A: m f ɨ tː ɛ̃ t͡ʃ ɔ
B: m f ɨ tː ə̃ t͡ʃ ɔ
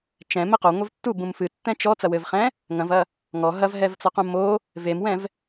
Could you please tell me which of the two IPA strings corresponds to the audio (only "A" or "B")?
A